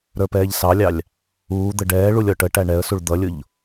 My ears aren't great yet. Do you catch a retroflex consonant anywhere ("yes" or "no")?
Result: yes